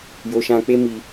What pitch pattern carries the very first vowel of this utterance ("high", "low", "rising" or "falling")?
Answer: high